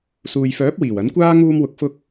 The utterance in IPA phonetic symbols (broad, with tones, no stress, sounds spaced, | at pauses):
s uː˨ j f œː˨˥ p̚ w iː˨˩ w ɐ˨˥ n kʷ aː˥ ŋ uː˧ m w ʊ˨ k̚ f ʊ˧ k̚